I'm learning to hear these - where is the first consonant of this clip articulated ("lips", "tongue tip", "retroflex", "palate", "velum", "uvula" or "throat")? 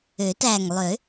tongue tip